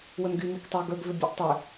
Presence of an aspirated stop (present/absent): absent